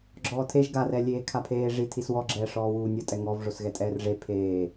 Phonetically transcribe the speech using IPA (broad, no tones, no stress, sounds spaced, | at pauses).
ɡ͡ǁ ɔː tʰ e ʒ ɡ a r ɛ lʲ eː kʰ a pʰ eː ʐ i tʰ i s w ɔ ɡ͡ǁ ɛː ʂ ɔː w uː nʲ ɔ tʼ ɛ ŋ ɔ v ʐ o s ɣ ɛ tʼ ɛː r ʐ e pʰ eː